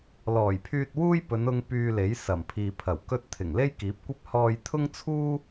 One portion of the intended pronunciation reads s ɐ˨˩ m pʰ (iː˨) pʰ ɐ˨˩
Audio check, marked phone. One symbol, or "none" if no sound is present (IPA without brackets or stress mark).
iː˨